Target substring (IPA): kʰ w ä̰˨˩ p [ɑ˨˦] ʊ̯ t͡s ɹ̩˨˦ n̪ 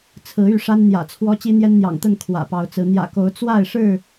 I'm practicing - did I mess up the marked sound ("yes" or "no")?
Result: no